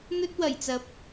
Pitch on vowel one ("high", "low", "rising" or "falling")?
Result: high